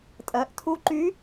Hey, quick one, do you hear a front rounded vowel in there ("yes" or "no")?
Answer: yes